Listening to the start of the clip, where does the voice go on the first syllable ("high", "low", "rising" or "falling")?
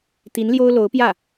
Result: rising